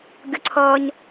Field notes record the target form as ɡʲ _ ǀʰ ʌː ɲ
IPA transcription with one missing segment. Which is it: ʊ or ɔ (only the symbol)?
ʊ